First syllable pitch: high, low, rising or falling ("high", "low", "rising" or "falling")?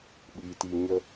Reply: low